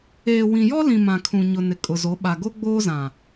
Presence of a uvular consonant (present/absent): absent